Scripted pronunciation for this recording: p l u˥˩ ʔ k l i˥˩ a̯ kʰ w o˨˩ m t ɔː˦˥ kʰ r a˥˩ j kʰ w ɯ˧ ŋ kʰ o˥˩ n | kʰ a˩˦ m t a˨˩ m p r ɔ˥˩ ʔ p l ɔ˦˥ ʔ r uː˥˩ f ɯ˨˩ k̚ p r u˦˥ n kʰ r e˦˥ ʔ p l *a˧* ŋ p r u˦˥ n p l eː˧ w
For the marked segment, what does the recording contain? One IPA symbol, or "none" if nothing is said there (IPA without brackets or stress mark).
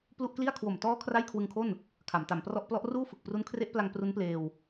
a˧